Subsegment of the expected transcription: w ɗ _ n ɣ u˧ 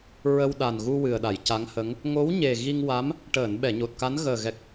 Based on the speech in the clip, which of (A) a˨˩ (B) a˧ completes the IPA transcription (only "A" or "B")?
A